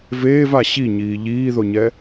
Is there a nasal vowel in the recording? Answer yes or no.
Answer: no